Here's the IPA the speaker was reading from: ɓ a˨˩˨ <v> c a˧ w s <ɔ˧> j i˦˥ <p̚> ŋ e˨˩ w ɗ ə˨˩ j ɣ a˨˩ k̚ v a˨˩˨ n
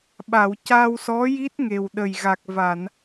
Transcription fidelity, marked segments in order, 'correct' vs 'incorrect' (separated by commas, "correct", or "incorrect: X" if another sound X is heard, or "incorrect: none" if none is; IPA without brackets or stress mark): incorrect: w, incorrect: ɔ˧˥, incorrect: t̚